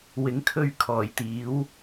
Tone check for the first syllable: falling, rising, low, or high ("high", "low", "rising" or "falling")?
rising